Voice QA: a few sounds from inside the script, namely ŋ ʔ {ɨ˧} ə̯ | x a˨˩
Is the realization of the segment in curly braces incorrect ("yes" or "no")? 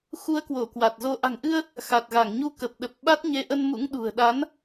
no